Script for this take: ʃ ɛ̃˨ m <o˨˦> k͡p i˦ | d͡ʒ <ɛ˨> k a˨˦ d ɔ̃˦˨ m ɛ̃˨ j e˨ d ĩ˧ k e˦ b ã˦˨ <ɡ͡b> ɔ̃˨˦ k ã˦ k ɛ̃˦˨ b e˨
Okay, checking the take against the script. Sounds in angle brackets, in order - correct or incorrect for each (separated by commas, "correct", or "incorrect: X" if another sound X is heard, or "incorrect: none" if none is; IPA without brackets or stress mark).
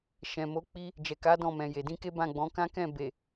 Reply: correct, correct, correct